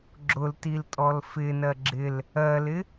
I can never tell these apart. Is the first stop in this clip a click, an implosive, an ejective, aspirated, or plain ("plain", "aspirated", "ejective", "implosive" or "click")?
click